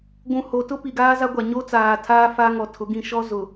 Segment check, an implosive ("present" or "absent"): absent